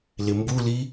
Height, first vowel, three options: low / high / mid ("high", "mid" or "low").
high